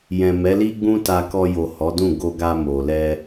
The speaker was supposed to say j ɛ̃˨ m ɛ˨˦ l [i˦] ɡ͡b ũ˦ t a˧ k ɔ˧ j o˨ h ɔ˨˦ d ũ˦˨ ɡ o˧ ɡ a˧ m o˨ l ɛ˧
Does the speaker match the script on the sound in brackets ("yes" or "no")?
yes